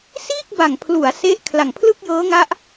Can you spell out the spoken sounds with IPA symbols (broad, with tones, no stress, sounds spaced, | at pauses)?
s iː˥˩ k̚ b a˨˩ ŋ pʰ l u˩˦ a̯ s e˦˥ ʔ kʰ l a˨˩ ŋ pʰ l ɯ˥˩ k̚ j ɤː˦˥ ŋ a˦˥ ʔ